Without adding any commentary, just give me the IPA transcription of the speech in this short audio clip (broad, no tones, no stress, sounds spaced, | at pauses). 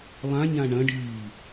lˠ ã ɲ ã ɳ ɐ̃ ɖ iː